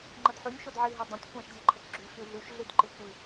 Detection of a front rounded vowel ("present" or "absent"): absent